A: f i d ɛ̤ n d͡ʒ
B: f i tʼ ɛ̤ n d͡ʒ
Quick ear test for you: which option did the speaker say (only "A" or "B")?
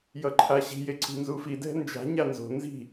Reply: A